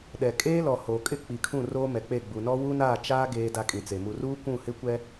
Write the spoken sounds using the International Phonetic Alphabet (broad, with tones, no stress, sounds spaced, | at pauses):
ɗ ɛ˨ kʼ eː˦ l ɔ˨ h oː˨ kʼ ɪ˦ k͡p i˨ kʰ ũ˦˨ r oː˦ m ɛ˨ k͡p e˦˨ ɡ͡b u˨ n ɔ˦ w u˦ n aː˦˨ t͡ʃ aː˦ ɡ eː˦ d a˦ kʼ ĩ˨ t͡s e˨ m u˨ r uː˦ kʷ ũ˦˨ h ɪ˦ kʷ ɛ˦